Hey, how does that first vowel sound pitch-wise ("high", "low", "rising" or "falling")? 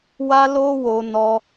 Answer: high